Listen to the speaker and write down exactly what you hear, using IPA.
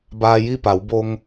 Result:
b aː˧ j i˥˨ p a˩˧ w b o˧ ŋ

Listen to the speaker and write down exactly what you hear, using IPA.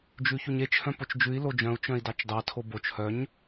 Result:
d͡ʒ ʉ ç u ɲ e t͡ʃ h œ̃ p o t͡ʃ d͡ʒ ʉ i̯ l o d͡ʒ œ̃ u̯ t͡ʃ œ̃ i̯ d ɑ t͡ʃ d ɑ tʰ o b o t͡ʃ h œ ɲ

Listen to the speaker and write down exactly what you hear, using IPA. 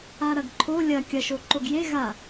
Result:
a ɾ ɐ ɡ ǃʰ o lʲ ɐ kʲ ɐ ʃ o ǃ o ɡ j e ɣ a

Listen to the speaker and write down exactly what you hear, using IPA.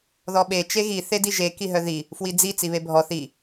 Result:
ð ɔ ɓ e t͡ʃ e ɣ i θ e d i ʒ e k i ɦ œ ð i | f w i d͡z i t͡s i β e bʱ ɔ θ i

